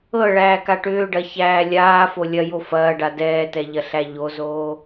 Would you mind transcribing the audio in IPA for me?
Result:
ɤ ɭ æː k a ʈ ʏː ɖ ɐ ç æː lʲ aː f o lʲ ɐ j o f ɐː ɖ a d ɛː t ɛ ʎ ɐ ɬ æ ʎ o z oː

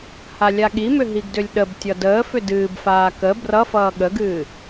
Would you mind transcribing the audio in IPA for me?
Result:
h a lʲ a ɠ i m ʏ ɦ i ɡ d ʏ lʲ ɗ ə b tʲ ʌ d əː f ʏ d ɨː b f aː k ə b r ʌ f ʌː ɠ ə ɡ ɨː

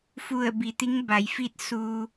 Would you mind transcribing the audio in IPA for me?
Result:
f u˧˩ ə̯ b i˩˧ t̪ i˧˥ ŋ b a˩˧ j f i˥˨ t̚ s uː˧

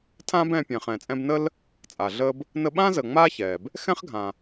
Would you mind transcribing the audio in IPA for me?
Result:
tʰ ãː˥ b ɛ̃ː˧ pʲ ɛ̃ː˩ χ ɛ̃ː˩ t͡sʼ ɛ̃˧ b n ə˥ l | t͡sʼ a˩ ɮ əː˧ b | n ə˧ ɓ ãː˥ z əː˩ ŋ͡m aː˥ ç ɛː˩ b | x ɛ̃˥ χ ɡʱ ã˩

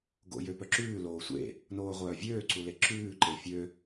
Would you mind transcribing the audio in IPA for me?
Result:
ɡ o̰ j ø p œ ǁ ʉː l oː sʷ ḛ | n oː ʁʷ œː vʲ øː ǀ u l e ǁ ʉː ǃ e fʲ ø

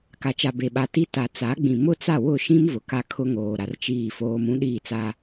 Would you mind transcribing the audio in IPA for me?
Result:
k a˨ t͡ʃ a˨ b e˨ ɓ a˨ t i˦ t a˨ t͡s a˨˦ ɡ͡b ĩ˨ m ʊ˦ t͡s a˦˨ w ʊ˦˨ ʃ ĩ˦ m v ʊ˨ k a˦ kʰ ʊ˦ ŋ oː˨ ɾ a˨ r t͡ʃ iː˦˨ f oː˦ m ũ˦ ɗ iː˦˨ t͡s a˦

